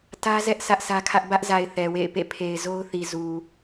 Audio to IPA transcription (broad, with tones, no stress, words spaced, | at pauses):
tä˦zɛ˦ʔ sʰä˦ʔsʰä˦kʰä˦ʔ bä˦ʔza˨ɪ̯ θɛ˨wḛ˦˨ɪ̯pḛ˦˨ pʰe˨ɪ̯zo˦ʊ̯θi˨ zu˨